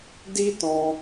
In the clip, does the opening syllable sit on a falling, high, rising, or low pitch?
high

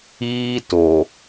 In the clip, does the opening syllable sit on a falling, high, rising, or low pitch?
high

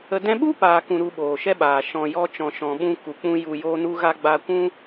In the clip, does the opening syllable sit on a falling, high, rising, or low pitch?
low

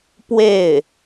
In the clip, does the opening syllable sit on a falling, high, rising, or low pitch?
falling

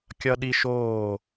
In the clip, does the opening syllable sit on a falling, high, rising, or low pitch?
high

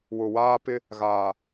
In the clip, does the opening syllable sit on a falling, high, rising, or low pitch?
low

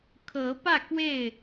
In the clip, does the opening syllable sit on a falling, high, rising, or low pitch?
rising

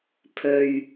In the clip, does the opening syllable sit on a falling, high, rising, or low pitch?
low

